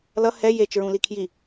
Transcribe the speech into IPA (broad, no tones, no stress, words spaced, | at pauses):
lʌ hɛ jet͡ʃɹũli kʰji